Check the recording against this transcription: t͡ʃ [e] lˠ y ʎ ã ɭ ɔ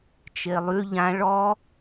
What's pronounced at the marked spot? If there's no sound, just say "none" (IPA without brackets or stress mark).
e